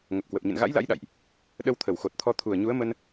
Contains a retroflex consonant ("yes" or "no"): no